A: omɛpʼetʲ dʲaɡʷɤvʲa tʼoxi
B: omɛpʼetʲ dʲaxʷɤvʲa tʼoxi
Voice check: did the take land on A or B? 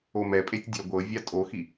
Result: A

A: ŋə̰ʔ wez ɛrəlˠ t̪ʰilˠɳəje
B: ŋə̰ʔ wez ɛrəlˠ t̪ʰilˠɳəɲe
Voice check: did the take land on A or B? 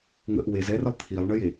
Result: A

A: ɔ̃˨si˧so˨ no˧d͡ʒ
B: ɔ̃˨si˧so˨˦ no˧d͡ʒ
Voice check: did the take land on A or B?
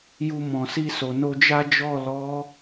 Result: A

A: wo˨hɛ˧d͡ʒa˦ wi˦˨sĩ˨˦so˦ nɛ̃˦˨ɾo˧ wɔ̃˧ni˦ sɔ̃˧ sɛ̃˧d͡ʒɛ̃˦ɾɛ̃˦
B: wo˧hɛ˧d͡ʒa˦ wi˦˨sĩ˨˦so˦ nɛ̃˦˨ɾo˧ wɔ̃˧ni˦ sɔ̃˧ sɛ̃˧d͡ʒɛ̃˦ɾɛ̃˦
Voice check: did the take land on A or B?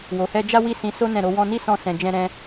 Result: A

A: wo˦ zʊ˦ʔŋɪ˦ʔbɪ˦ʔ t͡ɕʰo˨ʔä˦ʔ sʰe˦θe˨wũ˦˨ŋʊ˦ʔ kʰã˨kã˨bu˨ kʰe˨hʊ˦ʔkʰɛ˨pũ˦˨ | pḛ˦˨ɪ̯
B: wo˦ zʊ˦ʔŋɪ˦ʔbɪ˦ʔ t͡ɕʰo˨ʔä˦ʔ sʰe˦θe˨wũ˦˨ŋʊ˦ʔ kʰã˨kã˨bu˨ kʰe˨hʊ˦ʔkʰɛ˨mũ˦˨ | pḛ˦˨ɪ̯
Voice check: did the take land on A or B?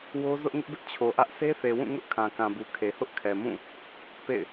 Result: B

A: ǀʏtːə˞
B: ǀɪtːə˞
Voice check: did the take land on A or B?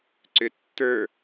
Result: A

